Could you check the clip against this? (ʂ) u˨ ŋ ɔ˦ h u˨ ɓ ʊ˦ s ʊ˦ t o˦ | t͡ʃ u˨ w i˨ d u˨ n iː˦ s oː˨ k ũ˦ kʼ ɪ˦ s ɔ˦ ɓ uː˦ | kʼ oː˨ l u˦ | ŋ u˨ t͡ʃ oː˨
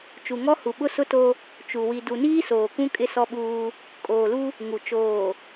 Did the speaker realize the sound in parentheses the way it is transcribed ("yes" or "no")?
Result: no